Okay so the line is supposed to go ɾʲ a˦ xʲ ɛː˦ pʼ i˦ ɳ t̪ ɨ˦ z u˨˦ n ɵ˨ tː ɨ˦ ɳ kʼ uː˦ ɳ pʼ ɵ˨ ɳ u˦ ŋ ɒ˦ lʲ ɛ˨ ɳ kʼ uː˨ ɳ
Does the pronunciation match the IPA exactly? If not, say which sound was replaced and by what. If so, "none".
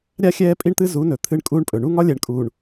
tː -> t̪ʰ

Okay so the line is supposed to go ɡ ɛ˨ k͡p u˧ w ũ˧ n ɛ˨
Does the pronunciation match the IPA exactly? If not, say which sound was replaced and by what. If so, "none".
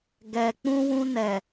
u˧ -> ũ˧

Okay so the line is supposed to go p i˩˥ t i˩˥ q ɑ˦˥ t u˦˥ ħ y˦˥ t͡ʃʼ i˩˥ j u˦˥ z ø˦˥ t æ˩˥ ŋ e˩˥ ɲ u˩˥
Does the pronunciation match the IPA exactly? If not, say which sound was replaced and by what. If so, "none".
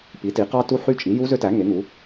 ɲ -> ŋ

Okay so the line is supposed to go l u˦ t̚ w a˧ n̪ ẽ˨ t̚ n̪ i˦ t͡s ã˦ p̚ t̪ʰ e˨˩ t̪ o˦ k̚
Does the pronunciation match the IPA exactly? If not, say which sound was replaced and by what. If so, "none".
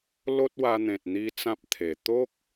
u˦ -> o˦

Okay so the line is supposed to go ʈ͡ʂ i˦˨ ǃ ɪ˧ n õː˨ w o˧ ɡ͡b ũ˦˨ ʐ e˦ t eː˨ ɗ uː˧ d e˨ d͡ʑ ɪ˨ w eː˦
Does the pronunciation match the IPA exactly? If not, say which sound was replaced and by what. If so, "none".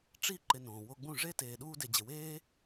none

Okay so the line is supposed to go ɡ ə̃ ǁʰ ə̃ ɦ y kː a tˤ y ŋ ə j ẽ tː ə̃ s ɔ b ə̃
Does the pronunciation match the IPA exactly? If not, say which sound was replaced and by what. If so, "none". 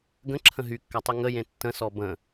none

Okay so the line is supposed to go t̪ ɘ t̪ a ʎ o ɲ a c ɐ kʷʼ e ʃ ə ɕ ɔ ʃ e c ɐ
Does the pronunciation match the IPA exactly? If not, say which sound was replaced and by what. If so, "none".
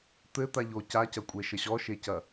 ɲ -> c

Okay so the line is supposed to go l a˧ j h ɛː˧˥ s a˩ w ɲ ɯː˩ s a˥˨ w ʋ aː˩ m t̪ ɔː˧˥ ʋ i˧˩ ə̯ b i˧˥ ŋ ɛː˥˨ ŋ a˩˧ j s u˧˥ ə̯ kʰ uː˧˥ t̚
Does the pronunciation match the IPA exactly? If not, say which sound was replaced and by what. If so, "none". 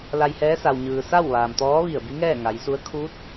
none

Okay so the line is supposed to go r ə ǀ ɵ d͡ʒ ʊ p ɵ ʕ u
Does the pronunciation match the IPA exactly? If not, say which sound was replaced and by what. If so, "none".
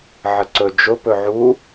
r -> ʕ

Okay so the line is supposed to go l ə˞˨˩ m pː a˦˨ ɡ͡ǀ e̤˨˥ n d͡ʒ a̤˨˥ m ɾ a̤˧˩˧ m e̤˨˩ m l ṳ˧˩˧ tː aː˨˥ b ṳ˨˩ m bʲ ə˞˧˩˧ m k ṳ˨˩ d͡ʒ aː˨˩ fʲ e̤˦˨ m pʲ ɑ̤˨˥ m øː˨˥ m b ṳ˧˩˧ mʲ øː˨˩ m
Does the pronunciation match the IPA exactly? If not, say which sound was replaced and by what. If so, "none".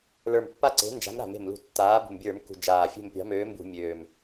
ɡ͡ǀ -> ǀ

